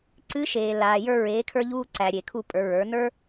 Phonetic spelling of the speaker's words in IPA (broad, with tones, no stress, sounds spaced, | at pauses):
ǀ ɨ˧˥ ʃ eː˩ l aː˩ j ə˞˧ ɹ eː˩˧ kʰ ə˞˧ ʎ uː˧ ǀ æ˩ ɾʲ e˩ kʰ u˧ pʼ ə˞˩˧ ɹ ə˞˩˧ n ə˞˥